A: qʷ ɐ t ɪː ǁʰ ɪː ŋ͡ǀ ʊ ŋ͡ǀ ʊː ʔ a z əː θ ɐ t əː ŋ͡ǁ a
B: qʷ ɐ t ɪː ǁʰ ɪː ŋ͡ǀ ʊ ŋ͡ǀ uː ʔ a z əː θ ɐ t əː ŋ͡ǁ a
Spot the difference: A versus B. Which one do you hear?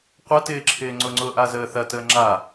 A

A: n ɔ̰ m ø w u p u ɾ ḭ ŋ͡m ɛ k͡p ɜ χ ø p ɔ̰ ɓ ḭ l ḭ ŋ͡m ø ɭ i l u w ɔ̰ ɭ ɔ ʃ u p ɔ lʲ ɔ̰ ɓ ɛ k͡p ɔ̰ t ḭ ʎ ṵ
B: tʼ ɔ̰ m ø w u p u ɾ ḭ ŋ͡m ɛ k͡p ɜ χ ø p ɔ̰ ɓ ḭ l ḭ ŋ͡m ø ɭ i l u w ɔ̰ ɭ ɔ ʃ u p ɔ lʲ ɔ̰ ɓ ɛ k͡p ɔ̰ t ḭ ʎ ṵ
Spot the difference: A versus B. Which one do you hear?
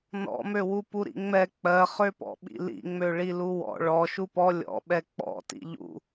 A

